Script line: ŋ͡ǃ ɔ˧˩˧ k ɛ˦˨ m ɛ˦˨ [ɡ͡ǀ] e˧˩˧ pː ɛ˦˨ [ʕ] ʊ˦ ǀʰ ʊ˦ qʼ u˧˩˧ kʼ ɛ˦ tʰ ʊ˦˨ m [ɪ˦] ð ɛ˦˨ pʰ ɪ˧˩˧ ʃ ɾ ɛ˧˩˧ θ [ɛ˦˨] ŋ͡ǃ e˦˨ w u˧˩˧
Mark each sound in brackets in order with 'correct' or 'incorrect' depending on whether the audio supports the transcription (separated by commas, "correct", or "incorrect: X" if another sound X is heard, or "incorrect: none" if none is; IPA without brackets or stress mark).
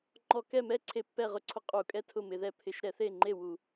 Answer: incorrect: ǀʰ, incorrect: ʁ, incorrect: ɪ˧˩˧, incorrect: e˦˨